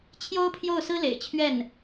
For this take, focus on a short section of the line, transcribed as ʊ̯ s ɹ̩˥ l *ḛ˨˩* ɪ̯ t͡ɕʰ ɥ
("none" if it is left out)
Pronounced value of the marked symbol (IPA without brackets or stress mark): ḛ˨˩